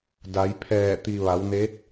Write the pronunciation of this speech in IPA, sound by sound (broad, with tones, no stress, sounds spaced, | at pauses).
d a˩˧ j pʰ ɛː˧˩ t̪ i˩ ʋ a˩˧ w n e˧˥ t̚